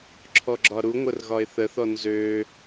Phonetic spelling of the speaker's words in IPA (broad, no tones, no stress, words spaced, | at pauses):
ǁʰɔɡ͡ǁɒɾuŋʷər ɣɒɪ̯θəθɔ nzø